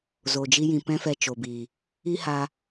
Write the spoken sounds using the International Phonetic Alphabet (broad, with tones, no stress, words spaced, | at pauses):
zo˨d͡ʒi˦jĩ˨ pɛ̃˦fɛ˧ t͡ʃo˨biː˨ | i˦haː˧